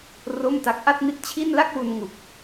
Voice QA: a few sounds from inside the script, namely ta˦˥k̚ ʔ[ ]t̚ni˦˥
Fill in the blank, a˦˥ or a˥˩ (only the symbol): a˥˩